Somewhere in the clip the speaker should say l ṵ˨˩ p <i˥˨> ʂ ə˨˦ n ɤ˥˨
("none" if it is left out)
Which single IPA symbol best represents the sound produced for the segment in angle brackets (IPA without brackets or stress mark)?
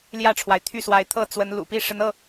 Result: i˥˨